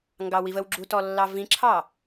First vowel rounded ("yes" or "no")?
no